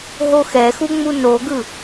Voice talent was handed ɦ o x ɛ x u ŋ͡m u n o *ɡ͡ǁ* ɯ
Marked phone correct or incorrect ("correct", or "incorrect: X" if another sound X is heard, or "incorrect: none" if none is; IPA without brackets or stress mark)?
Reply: incorrect: ɡ